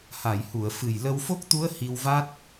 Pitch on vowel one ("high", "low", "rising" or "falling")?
low